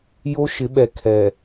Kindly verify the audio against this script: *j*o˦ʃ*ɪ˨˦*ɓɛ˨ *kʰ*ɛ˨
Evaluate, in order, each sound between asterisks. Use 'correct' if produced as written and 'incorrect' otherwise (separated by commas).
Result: correct, correct, correct